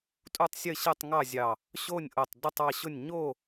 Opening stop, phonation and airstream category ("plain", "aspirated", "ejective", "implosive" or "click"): ejective